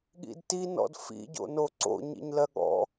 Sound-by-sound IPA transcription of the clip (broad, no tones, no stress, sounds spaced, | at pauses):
ɠ ḭ d t i n ɔ̰ d f ḭ ɟ o̰ n o ǀ o̰ ɲ ḭ ɲ l ɜ ɠ ɔ̰